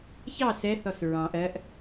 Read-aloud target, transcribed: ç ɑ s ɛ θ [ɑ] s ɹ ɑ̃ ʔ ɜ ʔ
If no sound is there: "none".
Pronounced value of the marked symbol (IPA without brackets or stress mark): ɔ